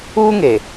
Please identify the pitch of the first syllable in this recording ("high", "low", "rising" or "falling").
high